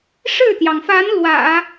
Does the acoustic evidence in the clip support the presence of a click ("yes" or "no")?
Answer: no